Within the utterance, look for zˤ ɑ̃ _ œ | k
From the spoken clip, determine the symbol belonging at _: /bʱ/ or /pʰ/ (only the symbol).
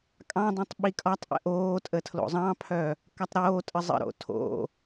pʰ